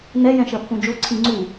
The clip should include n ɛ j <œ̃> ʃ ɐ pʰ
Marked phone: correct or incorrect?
incorrect